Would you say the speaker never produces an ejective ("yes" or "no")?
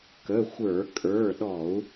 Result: no